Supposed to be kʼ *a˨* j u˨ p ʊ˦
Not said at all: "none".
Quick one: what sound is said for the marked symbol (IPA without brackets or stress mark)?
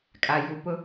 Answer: a˨